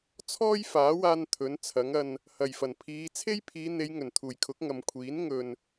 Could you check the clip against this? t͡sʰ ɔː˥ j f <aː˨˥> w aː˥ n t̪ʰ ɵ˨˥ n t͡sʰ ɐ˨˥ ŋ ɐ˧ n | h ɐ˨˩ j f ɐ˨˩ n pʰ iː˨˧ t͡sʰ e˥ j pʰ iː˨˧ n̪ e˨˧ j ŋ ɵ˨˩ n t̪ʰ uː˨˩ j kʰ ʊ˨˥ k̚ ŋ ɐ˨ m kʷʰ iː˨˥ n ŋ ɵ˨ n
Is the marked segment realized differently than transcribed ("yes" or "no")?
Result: no